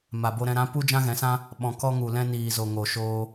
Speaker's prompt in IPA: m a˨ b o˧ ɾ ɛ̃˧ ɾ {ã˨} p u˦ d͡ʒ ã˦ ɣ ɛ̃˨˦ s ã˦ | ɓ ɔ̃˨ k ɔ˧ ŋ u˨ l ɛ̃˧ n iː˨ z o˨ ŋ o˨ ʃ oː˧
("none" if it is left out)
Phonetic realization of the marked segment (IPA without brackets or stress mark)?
ã˨˦